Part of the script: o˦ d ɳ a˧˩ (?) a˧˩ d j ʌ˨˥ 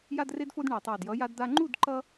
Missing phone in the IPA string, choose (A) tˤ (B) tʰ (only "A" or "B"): A